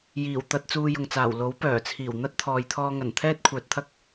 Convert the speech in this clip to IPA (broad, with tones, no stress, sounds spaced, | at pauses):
j iː˨˩ w t̪ ɐ˧ t̚ t͡s uː˧ j ʊ˨ ŋ t͡s aː˨˩ w l o˨˥ w p œː˨˩ t͡sʰ iː˨˩ w n̪ ɐ˥ t̚ t̪ʰ ɔː˨ j t̪ʰ ɔː˧ ŋ ɐ˨˩ n t̪ʰ ɛː˥ t̚ kʷʰ œː˨ t̚ t̪ʰ ɐ˥ k̚